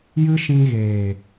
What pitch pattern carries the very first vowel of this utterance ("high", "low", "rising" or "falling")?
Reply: high